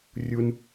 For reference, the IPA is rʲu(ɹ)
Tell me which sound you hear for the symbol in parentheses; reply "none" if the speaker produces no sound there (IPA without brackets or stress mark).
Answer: n